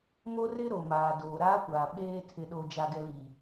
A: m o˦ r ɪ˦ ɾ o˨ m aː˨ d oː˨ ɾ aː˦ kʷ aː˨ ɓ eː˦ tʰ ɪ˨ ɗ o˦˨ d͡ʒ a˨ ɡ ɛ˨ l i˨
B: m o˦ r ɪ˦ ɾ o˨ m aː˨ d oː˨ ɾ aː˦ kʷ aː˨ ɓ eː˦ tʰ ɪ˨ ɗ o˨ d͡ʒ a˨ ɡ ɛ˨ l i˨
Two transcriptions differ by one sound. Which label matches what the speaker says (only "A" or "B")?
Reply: B